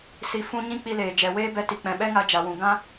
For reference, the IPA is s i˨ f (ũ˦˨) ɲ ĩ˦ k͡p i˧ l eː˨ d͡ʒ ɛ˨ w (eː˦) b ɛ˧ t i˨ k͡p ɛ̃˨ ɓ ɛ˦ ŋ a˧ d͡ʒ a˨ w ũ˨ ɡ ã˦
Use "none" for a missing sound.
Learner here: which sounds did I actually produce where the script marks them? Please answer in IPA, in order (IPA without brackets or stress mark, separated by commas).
ũ˧, eː˦